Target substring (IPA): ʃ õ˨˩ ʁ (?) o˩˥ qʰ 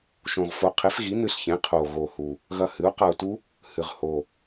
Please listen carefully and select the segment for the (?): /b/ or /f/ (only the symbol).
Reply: f